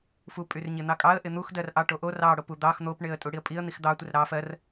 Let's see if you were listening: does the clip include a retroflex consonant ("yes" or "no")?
yes